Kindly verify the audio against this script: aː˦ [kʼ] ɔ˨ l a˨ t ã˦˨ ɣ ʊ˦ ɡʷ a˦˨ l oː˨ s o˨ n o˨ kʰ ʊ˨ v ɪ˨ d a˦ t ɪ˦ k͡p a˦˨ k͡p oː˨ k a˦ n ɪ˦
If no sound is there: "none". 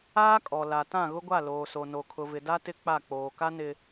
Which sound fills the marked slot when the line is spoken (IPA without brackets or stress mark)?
kʼ